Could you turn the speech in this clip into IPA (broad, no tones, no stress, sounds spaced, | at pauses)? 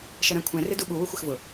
ʃ ʌ ɾ æ̃ kʷʰ ɛ̃ r ɪ d u ɓ u w ʊ xʷ ɪ x v ʊ